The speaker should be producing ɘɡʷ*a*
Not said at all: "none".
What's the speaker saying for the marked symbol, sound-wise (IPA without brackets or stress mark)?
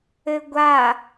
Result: a